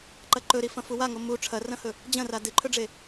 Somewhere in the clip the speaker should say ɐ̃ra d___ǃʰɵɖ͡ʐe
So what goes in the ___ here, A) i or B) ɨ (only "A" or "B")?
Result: B